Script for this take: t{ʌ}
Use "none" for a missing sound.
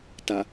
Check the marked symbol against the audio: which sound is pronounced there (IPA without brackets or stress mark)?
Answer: a